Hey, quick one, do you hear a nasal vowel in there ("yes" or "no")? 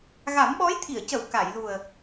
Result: no